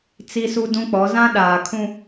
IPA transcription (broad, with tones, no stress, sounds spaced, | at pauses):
t͡s i˦ s u˦ d ũ˦ k͡p ɔ˨˦ z ã˦ ɗ aː˨ kʰ ũ˦